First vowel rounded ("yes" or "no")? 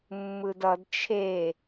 no